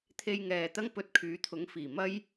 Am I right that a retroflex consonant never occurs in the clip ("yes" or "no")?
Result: yes